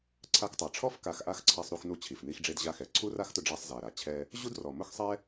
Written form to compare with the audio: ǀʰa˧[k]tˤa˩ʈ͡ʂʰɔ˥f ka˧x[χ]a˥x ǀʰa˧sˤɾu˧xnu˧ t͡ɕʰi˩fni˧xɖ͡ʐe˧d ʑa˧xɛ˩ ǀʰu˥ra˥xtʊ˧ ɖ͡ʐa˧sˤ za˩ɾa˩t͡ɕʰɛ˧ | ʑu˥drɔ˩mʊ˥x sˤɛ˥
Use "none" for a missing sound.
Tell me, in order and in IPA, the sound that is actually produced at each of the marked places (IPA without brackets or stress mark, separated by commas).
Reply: k, ʔ